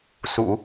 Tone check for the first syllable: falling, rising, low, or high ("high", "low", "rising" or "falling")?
low